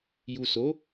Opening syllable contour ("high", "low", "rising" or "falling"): low